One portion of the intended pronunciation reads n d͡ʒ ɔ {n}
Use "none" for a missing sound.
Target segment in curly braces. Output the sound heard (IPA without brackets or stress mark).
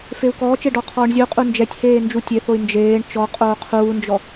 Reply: none